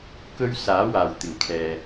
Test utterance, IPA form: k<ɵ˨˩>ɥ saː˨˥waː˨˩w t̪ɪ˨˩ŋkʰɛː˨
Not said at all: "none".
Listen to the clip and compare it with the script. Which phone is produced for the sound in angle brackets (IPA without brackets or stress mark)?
ɵ˥